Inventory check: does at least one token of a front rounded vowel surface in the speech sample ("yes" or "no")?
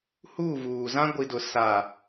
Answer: no